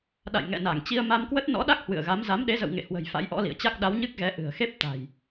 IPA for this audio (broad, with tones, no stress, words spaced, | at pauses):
ɗa̰˧˨jŋɛ̰˧˨na˧˩ŋ t͡ɕi˧ə̯ma˧mkwə˦˥t̚ nɔ̰˧˥ɗa˦˥k̚ hwɨ̰˧˨ə̯ɣa˨˦m za˨˦mɗe˨˦zə̰˧˨w ŋḛ˧˨hwə̤˨˩j fa̰˧˥jʔɔ̰˧˥lḭ˧˨ə̯t͡ɕa˦˥k̚ ɗa˨˦wɲɨ˦˥k̚ɣɛ˨˦ ʔɨ̤˨˩ə̯xe˦˥p̚ t̪a̤˨˩j